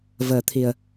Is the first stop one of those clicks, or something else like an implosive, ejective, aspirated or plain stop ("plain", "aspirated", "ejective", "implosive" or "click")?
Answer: aspirated